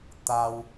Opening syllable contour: high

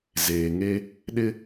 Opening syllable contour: low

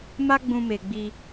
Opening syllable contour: high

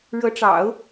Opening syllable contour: rising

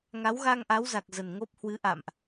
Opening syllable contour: rising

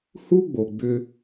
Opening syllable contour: high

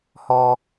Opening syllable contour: high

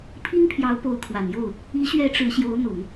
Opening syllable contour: high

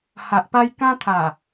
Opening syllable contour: low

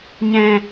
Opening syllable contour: low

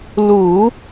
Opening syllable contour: low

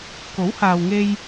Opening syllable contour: rising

